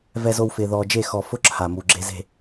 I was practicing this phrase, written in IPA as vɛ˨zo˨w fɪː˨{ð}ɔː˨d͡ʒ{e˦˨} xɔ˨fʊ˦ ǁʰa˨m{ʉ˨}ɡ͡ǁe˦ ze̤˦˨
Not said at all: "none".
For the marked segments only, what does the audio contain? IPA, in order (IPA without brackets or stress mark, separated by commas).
ð, e˦˨, u˨